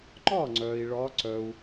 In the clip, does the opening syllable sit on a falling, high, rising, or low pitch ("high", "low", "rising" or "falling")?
falling